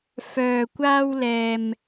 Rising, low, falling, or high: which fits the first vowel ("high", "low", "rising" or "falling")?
low